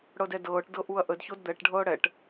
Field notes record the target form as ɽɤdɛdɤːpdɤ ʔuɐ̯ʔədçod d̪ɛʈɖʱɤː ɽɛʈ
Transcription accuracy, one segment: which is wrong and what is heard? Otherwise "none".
p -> ʈ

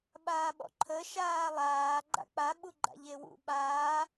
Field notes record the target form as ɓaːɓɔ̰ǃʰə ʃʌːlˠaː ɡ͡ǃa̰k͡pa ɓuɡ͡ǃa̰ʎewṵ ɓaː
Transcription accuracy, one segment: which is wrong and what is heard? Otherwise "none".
ʌː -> aː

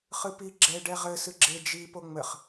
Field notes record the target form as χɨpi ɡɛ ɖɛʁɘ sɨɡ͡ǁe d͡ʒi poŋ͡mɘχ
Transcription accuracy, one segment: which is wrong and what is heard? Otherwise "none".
ɡ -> ɡ͡ǁ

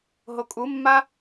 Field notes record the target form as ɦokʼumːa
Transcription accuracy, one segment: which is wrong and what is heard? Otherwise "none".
none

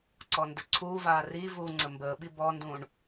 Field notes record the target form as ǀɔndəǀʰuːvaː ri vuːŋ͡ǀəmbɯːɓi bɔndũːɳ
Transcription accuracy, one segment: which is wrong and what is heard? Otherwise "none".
ɯː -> əː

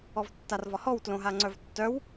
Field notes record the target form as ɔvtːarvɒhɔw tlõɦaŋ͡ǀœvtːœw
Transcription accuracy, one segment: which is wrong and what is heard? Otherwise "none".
none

